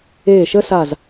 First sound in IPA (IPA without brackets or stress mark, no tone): eː